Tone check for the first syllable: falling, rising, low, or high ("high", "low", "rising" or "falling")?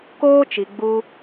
high